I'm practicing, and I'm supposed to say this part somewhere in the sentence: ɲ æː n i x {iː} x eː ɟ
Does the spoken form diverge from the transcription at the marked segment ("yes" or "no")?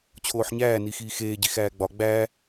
no